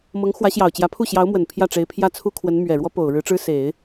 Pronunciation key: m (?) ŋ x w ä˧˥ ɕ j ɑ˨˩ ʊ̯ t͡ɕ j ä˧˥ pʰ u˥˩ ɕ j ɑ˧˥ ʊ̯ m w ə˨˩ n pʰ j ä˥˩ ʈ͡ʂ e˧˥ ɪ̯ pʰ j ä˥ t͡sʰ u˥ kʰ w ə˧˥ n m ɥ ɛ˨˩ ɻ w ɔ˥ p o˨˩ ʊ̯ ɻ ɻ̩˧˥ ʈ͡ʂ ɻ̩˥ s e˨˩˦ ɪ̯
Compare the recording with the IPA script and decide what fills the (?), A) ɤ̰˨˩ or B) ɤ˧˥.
B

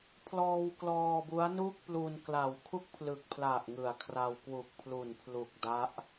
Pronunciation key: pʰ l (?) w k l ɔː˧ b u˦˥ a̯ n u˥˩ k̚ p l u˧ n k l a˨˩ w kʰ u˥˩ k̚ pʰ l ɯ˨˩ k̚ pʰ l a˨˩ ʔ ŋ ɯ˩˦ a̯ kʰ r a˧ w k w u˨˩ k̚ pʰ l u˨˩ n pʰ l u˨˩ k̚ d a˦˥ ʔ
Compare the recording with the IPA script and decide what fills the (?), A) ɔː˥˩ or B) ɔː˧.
B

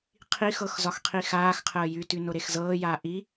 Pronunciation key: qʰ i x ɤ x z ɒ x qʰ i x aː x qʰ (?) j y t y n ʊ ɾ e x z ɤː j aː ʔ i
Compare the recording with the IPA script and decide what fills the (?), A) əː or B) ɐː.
A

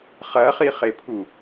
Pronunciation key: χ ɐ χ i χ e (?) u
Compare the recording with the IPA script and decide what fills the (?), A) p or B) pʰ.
B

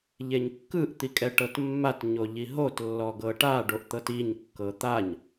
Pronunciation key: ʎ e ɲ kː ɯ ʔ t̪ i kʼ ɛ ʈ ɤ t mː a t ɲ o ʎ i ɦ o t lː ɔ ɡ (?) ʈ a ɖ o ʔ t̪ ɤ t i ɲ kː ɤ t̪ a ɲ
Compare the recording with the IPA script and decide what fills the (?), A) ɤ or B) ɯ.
A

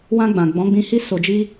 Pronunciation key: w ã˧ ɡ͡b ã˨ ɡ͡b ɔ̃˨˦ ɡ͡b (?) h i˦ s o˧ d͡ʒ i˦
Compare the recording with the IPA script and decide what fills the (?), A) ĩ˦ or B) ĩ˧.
B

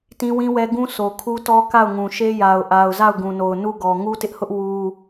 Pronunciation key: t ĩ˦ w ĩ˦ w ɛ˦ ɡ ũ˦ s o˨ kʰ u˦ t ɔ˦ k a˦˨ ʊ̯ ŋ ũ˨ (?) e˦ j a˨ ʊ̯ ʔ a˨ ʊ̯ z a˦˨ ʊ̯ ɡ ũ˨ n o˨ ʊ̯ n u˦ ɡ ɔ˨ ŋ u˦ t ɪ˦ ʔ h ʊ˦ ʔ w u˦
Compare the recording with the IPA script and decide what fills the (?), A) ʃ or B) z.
A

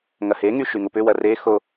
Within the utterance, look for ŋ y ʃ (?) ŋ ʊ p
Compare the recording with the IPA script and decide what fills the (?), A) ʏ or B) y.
B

